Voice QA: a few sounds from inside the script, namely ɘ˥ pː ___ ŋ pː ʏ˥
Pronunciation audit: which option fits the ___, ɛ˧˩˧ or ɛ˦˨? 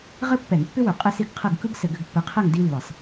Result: ɛ˧˩˧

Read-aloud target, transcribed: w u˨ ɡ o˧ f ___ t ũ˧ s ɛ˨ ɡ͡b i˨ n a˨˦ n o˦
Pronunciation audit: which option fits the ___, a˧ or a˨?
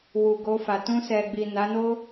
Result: a˨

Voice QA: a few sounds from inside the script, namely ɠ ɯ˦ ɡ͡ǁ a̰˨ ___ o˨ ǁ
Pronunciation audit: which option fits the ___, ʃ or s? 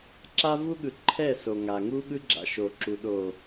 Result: ʃ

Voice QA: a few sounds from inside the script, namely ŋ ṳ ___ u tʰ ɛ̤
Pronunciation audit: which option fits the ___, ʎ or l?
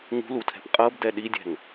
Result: l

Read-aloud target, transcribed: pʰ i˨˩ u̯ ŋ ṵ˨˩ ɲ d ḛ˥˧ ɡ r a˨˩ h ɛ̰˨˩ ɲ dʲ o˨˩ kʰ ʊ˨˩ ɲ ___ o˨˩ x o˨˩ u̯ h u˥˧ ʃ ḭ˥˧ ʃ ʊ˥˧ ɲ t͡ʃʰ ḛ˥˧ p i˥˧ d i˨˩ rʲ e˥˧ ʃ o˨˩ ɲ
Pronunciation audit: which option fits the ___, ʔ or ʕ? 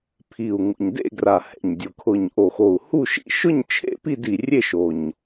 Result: ʔ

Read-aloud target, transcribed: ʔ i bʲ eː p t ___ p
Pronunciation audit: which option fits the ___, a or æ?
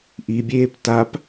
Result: a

